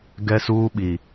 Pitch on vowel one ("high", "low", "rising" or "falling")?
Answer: high